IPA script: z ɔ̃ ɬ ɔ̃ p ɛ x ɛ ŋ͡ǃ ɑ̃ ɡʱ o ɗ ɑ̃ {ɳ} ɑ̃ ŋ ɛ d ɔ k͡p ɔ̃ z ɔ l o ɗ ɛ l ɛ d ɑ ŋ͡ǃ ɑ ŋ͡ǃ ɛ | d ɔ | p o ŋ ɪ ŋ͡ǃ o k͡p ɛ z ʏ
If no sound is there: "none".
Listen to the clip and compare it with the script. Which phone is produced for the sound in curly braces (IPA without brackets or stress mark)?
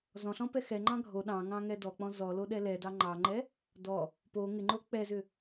ŋ